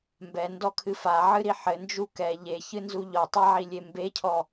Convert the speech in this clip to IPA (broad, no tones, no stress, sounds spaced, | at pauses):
m b ɛ n d ɔ kʰ ɨ f a ʕ ɨ ɾ i ħ ɘ n d͡ʒ u k ɛ ʎ e ç ɨ n z u ʎ ɔ tˤ a ʕ i lʲ e m b e cʰ ɔ